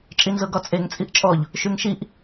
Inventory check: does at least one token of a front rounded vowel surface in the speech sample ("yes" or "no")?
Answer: yes